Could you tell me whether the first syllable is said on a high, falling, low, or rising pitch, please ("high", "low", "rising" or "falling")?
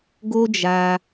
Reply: high